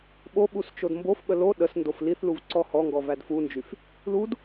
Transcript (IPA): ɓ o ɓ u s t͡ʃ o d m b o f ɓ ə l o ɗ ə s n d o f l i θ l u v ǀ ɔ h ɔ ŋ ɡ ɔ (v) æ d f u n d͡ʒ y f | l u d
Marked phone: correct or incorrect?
correct